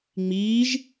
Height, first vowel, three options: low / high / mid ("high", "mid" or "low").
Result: high